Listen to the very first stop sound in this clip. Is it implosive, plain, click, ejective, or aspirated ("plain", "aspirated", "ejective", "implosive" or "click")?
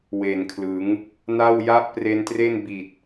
aspirated